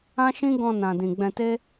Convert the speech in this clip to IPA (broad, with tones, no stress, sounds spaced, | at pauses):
ã˦ ʃ ĩ˦ ɡ ɔ̃˧ n ã˧ d ĩ˧ ɡ͡b ɛ̃˧ t e˦